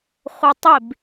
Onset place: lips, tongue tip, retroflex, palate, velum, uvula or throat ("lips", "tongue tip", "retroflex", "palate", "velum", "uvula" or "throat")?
uvula